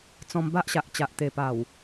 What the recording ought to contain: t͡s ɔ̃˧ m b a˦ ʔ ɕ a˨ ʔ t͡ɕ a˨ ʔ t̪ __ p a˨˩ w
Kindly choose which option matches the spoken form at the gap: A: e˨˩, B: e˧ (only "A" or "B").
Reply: A